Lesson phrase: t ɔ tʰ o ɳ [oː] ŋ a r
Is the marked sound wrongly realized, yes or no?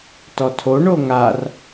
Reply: yes